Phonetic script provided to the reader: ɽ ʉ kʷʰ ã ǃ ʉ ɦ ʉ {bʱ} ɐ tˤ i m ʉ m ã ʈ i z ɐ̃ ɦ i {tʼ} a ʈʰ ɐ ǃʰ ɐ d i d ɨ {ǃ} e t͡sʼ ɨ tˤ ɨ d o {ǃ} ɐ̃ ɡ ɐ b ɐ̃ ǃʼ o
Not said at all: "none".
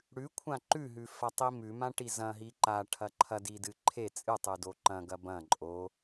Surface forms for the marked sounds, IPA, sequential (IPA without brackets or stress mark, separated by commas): f, ǃ, ǃʰ, ǃ